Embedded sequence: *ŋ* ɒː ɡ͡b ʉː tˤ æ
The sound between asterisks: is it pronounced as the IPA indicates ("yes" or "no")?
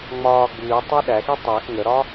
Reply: no